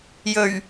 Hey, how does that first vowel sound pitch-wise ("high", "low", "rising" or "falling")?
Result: low